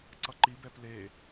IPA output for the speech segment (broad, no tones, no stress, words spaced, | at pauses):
ǀʌǃi bɛple